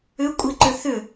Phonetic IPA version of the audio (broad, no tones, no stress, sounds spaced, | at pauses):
ʏ kʷʼ i ǃ ʏ θ ʏ